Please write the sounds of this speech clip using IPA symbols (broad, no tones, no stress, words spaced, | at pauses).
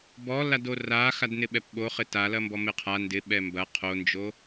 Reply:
bɔ ladoraxad nɪɓɛpɓo χɪtalɐmbɔ mɪqʰa ndɪɓɛ mbɐ qʰond͡ʒo